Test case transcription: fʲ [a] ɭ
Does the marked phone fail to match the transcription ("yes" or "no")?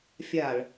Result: no